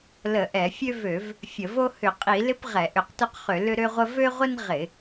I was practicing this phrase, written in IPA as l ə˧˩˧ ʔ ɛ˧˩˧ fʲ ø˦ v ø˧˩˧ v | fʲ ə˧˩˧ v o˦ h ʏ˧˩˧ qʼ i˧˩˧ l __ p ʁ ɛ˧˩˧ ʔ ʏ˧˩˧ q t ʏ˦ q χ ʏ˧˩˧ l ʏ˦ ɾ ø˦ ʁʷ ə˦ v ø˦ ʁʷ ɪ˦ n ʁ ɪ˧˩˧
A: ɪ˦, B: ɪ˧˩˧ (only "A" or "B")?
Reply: A